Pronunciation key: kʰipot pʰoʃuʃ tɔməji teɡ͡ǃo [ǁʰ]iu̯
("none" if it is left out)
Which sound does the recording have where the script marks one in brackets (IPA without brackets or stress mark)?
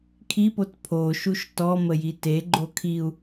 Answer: kʰ